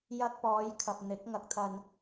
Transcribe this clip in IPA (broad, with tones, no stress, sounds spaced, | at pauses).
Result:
j ɐ˧ k̚ p ɔː˨˧ j kʰ ɐ˨ p̚ n̪ ɪ˨˥ k̚ ŋ ɐ˧ k̚ t̪ʰ ɐ˧ n